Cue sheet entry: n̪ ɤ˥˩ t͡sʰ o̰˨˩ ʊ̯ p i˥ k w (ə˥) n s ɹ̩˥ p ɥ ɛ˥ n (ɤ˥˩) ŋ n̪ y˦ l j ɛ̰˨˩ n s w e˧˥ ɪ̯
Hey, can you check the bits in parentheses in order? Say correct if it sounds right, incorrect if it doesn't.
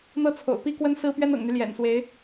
correct, incorrect

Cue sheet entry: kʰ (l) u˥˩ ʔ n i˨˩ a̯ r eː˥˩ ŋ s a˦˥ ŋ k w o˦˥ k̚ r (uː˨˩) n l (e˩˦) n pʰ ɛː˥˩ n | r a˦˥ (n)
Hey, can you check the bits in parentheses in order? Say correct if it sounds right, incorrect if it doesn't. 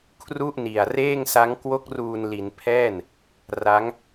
incorrect, correct, incorrect, incorrect

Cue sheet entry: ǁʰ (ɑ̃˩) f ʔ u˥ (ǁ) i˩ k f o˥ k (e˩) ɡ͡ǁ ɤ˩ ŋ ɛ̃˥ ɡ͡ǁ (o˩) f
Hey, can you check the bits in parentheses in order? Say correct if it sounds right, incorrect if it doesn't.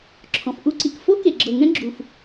incorrect, incorrect, correct, incorrect

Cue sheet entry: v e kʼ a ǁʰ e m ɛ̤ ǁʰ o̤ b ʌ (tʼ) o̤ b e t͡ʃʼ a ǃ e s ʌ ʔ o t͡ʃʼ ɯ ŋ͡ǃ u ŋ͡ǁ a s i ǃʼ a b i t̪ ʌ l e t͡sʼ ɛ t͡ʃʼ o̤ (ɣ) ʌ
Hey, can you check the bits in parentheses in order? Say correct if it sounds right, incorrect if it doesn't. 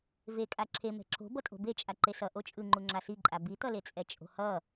correct, incorrect

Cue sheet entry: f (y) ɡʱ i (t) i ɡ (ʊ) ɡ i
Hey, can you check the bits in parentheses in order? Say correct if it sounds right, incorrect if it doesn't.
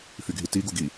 correct, correct, incorrect

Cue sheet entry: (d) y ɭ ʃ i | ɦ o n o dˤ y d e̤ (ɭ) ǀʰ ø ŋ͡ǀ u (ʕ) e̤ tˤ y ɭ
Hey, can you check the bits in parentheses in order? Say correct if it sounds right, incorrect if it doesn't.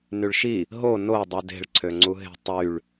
incorrect, correct, incorrect

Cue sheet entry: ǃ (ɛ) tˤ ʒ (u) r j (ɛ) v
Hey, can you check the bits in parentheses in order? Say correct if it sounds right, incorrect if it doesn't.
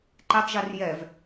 correct, correct, correct

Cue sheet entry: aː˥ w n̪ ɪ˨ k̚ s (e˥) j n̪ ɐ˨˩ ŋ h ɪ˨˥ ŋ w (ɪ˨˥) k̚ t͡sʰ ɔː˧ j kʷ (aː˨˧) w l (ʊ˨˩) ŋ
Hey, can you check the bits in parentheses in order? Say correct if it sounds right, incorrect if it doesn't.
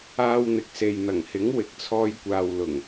incorrect, correct, incorrect, correct

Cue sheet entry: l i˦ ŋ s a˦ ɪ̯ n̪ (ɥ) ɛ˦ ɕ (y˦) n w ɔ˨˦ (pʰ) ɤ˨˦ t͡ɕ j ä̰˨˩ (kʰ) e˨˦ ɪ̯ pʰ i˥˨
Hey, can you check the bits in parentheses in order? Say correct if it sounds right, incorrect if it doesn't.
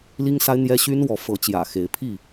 incorrect, correct, incorrect, incorrect

